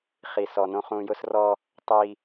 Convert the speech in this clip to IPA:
χ i˨ s ɔ˨ n õ˦ χ ũ˨ j ʊ˦ s r ɔ˦ | tˤ i˦

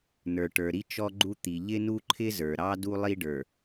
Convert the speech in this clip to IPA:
n ə˞˨ ʈ ə˞˨ ɾ i˦ t͡ʃ ɔ˦ ɡ͡ǃ u˦ t̪ i˨ ʎ ɪ˦ n u˦ ǃʰ ɪ˦ z ə˞˨ ɾ ɑ˦ d u˦ lˠ i˦ ɖ ə˞˨

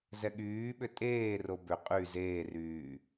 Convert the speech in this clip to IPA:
z ɛ ɠ yː ɓ ʏ tʼ eː r o b ʏ qʼ y z eː r yː

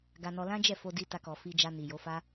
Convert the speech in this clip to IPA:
ɡ a˧ n ɔ˧ l ã˦ d͡ʒ ɛ˦˨ f o˧ d i˧ t a˧ k ɔ˨ f i˧ d͡ʒ a˧ n i˨ j o˨˦ f a˦

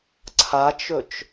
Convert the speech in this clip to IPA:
ǀʰ a t͡ʃ ɵ t͡ʃ

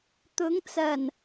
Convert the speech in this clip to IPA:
t̪ ʊ˨˧ ŋ t͡s ɐ˨˩ n

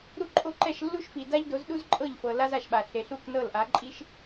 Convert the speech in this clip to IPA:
ɾ u˥ ǃʼ o˥˩ ǃ ɛ˥˩ ʃ lː u˥ ʃ f i˩ d a˥ ʎ d o˩˥ z ɗ u˥ z ǃʼ ɤ˥˩ ʎ f ɤ˩ l a˥ z a˥˩ ʃ ɓ a˩ ɬ e˩ ɬ u˥˩ k n ɤ˥˩ l ʔ a˩˥ ǃʼ i˥ ʃ

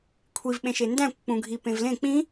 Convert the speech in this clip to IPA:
kʷʰ i v ɓ ẽ ʃ e n d æ̃ kʷ k͡p ũ ɡʱ i p ẽ v l ẽ k͡p ĩ

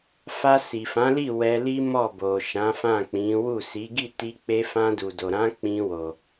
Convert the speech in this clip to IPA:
f a˧ s i˨ f ã˨˦ l i˦˨ w ɛ˧ l i˦ m ɔ˦˨ b o˨ ʃ ã˨˦ f ã˦˨ k͡p ĩ˨˦ w u˦˨ s i˨˦ ɡ i˦˨ t i˧ k͡p e˧ f ã˧ d u˨ d o˨ ɾ ã˨˦ k͡p ĩ˧ w o˨

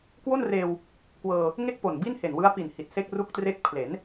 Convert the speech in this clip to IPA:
k w o˥˩ n r eː˧ w | k w ɤː˧ | ŋ e˥˩ k̚ p o˨˩ n b i˥˩ n h e˨˩ n w ɯ˦˥ a̯ p i˨˩ n h i˨˩ t̚ s e˥˩ k̚ r u˥˩ k̚ t r e˥˩ k̚ pʰ l e˩˦ n

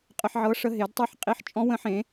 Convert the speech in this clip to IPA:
qʼ ə˧ ħ ʕ ɤ˧ ʂ ə˧ ɦ e˩˧ d tˤ e˧˩ ħ qʼ i˧ ħ t͡ʃʼ ɔ̃˧ w ə̃˧ ħ ẽ˩˧

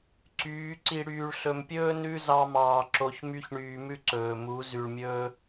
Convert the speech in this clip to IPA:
ǀ yː˨˦ ǀ i˨ ɽ yː˨ ɭ ɬ ɵ˨ m pʲ ɵː˦ n ʉ˦ z ɑ˦ m ɑː˧ ǁ o˧ ç m y˦ ç ɳ yː˧ m ʉ˦ ǀ ɵː˨ m u˨˦ z y˧ ɭ mʲ ɵː˦

